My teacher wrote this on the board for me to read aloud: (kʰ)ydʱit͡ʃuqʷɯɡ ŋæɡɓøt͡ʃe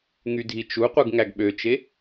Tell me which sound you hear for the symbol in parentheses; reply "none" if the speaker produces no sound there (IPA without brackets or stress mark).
ŋ